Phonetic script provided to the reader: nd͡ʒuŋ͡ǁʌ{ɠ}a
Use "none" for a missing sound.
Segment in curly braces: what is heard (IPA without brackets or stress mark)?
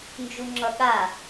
ɠ